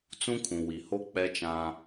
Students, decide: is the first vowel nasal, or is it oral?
nasal